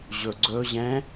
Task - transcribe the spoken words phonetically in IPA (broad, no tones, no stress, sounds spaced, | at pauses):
ʑ ɵ ɡ͡ǀ ɵ ʑ ɛ̃ː